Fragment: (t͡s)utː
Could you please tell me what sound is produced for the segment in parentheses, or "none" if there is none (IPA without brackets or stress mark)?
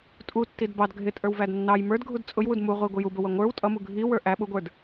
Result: tʼ